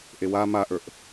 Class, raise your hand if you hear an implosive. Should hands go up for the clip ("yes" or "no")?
no